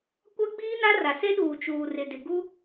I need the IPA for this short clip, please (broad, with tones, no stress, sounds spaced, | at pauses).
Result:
kʷ a˦ ɡ͡b iː˦ n a˦ r a˨ s e˦ ɗ uː˨ t͡ʃ uː˨ r ɪ˨ d ɪ˨ ɡ u˦